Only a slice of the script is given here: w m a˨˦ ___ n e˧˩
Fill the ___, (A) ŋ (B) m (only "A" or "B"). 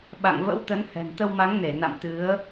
A